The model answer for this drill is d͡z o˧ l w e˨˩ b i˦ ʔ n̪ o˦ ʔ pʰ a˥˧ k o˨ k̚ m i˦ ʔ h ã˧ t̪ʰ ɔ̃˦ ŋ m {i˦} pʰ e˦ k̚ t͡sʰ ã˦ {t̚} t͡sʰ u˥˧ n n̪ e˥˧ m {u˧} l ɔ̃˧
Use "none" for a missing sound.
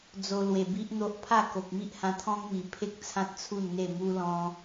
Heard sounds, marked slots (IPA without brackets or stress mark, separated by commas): i˨˩, t̚, u˦